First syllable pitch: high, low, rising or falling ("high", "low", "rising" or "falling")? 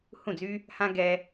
falling